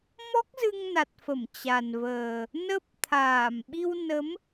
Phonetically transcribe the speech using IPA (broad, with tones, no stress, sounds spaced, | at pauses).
m ɔ˦˥ k̚ z ɨ˧ ŋ n a˨˩ t̚ f ə˧˩ m t͡ɕ a˨˩ n v əː˨˩ | n ə˦˥ p̚ t̪ʰ aː˧˩ m ɓ i˧ w n ə˨˦ m